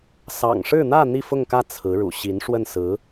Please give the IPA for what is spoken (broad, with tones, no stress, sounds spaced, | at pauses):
s ɑ̰˨˩ ŋ ʂ ɻ̩˥˧ n̪ ä˥˧ n̪ i˥˧ f ʊ˥˧ ŋ k ä˥˩ t͡sʰ ɹ̩˧˥ ɻ ṵ˨˩ ɕ i˧˥ n ʂ w ə˥˩ n s ɹ̩˧˥